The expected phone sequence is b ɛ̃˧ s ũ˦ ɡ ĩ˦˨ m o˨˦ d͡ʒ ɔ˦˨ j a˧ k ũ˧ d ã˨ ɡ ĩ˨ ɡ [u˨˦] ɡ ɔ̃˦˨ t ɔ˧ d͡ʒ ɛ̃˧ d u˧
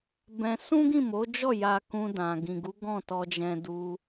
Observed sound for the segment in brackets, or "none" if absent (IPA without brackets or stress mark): u˨˦